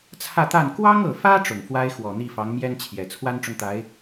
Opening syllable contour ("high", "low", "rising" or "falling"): falling